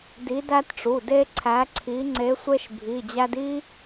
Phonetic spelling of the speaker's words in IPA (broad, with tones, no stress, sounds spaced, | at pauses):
d i˨˦ d æ˦ t ʈ͡ʂ u˩˧˩ d e˦ ǀʰ æ˨˦ ǀʰ i˨˦ ŋ͡ǀ e˨˦ sʷ e˦ ʃ bʱ i˩˧˩ d͡ʑ æ˦ d i˦